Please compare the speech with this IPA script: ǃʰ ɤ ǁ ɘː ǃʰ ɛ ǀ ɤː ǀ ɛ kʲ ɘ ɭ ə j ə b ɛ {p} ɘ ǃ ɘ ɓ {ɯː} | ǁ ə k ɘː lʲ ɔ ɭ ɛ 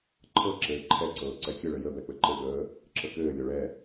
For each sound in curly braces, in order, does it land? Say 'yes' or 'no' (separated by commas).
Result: no, no